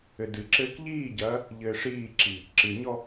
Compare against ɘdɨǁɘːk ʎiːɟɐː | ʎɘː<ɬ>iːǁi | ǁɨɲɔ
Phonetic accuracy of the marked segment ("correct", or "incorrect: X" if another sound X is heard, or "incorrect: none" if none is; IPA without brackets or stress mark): incorrect: ʂ